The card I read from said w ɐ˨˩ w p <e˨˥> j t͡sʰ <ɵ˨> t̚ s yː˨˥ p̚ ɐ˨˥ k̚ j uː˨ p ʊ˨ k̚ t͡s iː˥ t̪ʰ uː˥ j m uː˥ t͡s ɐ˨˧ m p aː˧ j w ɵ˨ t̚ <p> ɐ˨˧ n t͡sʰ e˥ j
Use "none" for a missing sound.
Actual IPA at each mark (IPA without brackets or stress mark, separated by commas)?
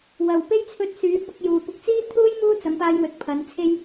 e˥, ɵ˧, pʰ